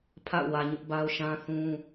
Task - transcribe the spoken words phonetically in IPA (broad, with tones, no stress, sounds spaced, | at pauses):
pʰ a̰˦˨ ʊ̯ w ä˨ ɲ ʊ˦ ʔ b a˦ ʊ̯ ʃ ã˦ θ ũ˦